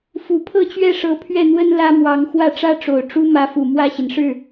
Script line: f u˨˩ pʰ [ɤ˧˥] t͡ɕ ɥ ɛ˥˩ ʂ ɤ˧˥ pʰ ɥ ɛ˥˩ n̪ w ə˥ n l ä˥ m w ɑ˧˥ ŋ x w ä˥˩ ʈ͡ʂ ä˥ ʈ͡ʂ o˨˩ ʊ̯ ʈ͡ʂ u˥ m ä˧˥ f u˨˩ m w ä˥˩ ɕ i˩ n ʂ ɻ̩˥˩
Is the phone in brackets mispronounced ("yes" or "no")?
yes